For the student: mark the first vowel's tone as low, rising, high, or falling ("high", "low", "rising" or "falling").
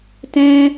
high